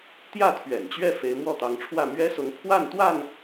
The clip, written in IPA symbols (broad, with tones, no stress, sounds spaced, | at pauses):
t̪ j ä˥˨ t̪ʰ ɥ ɛ̰˨˩ n t͡ɕ ɥ ɛ˥˨ f e˨˦ ɪ̯ m w ɔ˥˨ t̪ ɑ˨˦ ŋ ʈ͡ʂʰ w ä˥˨ m ɥ ɛ˦ s ʊ˨˦ ŋ pʰ w a˥˨ n t̪ w a˥˨ n